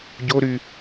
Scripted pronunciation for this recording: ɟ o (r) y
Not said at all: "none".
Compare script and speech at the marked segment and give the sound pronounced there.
ɾ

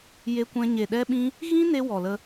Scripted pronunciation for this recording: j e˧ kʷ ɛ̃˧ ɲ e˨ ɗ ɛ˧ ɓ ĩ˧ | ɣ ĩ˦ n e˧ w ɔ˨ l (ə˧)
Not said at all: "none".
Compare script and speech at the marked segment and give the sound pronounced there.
ə˧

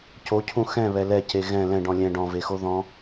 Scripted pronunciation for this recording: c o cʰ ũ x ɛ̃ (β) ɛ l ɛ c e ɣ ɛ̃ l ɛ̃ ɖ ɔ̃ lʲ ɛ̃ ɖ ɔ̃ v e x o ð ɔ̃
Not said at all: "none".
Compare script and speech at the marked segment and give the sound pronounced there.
β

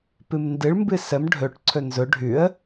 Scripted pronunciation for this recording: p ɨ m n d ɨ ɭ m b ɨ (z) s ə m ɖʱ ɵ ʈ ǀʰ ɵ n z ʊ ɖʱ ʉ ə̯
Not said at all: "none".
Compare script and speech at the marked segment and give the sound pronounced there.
none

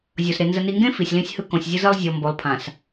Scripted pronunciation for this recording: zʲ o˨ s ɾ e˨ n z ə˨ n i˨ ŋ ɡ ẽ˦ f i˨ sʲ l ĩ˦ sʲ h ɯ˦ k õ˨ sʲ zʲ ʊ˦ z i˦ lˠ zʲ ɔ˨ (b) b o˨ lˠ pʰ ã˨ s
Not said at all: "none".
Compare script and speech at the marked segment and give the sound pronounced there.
m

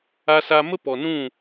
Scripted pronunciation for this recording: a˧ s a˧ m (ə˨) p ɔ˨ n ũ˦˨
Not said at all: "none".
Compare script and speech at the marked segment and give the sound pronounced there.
ə˦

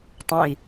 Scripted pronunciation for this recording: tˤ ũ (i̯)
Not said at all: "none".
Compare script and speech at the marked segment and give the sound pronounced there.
i̯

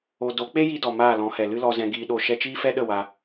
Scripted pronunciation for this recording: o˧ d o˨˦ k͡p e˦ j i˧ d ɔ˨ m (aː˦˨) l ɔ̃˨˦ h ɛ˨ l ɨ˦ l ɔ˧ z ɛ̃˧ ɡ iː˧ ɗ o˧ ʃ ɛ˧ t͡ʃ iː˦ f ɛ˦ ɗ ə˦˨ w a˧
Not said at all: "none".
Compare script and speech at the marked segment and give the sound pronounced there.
aː˦˨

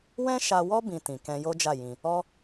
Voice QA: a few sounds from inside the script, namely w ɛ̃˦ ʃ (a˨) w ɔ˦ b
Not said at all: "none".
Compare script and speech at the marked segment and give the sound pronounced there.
a˧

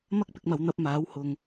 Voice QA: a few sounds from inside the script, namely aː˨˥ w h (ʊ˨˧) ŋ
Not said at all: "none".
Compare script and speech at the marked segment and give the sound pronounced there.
ʊ˨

